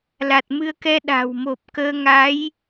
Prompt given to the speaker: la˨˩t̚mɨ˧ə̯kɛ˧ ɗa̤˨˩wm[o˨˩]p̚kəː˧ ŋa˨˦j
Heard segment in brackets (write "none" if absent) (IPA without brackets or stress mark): o˨˩